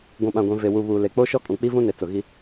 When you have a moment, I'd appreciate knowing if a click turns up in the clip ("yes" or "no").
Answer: no